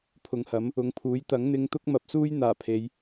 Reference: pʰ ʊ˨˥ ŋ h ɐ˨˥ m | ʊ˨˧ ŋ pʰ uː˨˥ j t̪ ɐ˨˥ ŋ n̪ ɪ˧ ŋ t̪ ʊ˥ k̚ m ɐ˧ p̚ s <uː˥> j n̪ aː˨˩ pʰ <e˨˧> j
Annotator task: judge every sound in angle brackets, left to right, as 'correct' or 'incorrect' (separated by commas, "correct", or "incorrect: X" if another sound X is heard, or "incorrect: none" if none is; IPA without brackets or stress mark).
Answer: correct, correct